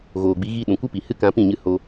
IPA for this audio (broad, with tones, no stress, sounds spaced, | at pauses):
ɣ oː˨ ɡ͡b i˨˦ ɣ i˧ ɗ ũ˨ kʷ ɨ˦ p i˨ h ɨ˦ k ã˧ p ĩ˦˨ ɲ ɨ˧ h o˧